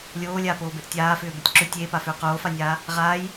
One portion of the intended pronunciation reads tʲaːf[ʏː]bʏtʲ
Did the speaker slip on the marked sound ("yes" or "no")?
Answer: no